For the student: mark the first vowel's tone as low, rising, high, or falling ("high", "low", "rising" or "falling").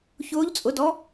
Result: rising